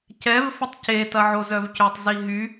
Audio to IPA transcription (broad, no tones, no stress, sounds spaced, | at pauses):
c ɛ v f ə tˤ c e t ɐ ʕ o z œ v c ʏ tˤ z i ɦ y